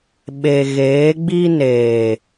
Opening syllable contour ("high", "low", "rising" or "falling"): low